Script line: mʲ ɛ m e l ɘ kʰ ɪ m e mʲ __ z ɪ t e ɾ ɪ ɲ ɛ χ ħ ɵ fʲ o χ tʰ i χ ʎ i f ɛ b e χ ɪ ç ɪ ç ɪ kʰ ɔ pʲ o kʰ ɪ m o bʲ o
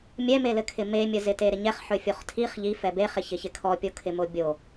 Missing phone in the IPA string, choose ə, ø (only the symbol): ə